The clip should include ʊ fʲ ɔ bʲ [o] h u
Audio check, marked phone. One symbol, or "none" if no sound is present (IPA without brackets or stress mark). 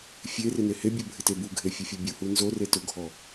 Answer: u